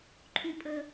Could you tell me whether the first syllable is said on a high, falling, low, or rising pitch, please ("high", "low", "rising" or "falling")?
high